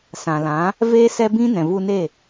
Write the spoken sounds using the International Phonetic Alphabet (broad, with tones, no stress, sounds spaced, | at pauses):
s ã˨ l ã˨˦ | v eː˦ s ɛ˦ b ĩ˦ n ɛ̃˨ v u˧ n e˦˨